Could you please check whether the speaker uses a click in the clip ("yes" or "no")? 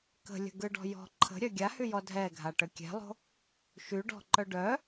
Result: yes